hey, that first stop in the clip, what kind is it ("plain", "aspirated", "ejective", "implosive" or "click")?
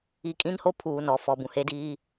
ejective